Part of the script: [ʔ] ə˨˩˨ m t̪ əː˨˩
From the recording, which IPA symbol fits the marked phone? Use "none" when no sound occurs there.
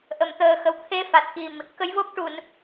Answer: ʔ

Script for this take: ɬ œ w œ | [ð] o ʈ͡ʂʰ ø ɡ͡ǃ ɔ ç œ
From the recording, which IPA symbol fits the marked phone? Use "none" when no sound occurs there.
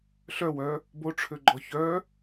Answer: b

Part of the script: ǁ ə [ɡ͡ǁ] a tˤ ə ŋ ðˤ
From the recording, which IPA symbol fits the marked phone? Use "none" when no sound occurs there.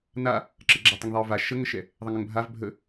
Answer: ɡ͡ǁ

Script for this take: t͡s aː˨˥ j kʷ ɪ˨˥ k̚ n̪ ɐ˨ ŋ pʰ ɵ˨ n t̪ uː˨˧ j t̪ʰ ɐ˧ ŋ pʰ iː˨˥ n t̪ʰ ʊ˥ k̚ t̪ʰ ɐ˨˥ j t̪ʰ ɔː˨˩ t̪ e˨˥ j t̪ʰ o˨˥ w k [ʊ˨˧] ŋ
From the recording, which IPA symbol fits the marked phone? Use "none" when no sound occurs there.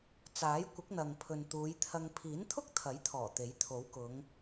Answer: ʊ˨˧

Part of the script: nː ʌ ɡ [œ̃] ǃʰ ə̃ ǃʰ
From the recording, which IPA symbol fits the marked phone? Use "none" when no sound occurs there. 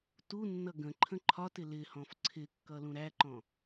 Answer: ə̃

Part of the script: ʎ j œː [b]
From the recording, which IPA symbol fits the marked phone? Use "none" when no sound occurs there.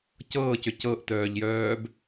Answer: b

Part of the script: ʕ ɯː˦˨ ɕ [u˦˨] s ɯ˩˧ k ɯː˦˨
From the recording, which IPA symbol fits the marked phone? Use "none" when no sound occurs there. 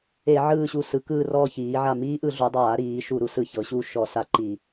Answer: u˦˨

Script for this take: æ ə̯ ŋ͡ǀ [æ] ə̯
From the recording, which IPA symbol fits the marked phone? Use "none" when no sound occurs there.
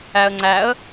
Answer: æ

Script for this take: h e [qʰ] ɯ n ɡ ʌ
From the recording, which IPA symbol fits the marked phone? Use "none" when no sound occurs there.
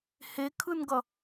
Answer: kʰ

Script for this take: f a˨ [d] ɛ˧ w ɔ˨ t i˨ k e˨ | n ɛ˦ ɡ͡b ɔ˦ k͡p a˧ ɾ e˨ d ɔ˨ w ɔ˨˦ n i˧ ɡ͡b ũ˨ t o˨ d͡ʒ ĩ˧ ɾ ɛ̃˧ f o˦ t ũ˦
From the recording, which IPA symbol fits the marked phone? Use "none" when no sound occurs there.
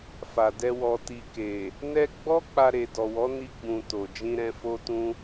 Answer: d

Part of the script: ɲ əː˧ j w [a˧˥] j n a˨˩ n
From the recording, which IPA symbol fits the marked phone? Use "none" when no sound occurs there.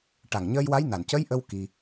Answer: a˧˥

